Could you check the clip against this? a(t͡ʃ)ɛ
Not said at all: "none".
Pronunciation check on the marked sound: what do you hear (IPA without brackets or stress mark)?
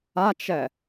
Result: t͡ʃ